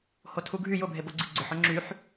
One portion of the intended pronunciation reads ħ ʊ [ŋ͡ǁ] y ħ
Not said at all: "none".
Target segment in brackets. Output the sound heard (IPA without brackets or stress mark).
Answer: ŋ͡ǁ